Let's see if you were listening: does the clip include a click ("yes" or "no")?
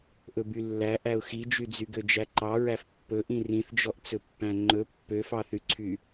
yes